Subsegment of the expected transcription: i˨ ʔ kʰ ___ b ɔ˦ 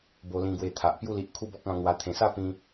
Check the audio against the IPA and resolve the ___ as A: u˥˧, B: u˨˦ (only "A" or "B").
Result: A